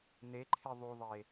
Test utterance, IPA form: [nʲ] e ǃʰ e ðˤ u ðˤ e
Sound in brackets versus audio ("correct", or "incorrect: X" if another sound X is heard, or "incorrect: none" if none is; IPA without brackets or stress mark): incorrect: n